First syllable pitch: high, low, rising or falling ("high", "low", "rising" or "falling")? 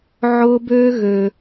high